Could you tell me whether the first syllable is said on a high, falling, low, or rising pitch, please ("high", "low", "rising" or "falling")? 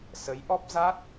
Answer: rising